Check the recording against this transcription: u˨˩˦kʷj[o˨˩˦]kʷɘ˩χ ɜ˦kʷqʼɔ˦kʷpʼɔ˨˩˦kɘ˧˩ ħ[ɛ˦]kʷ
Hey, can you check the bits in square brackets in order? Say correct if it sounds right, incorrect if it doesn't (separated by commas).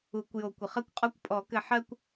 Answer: correct, incorrect